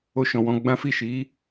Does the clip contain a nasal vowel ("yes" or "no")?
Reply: yes